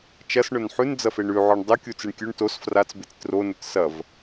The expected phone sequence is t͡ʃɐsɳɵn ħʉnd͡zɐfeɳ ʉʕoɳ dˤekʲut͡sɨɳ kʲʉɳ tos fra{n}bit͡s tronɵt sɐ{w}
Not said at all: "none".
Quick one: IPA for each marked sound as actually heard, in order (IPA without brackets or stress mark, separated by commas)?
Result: t͡s, v